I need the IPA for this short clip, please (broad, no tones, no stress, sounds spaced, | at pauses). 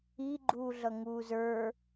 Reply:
i ɡ͡ǃ uː ɮ ʌ ŋ uː z ə˞